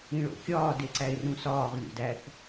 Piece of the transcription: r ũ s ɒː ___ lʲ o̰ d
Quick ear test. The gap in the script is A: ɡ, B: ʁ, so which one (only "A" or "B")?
B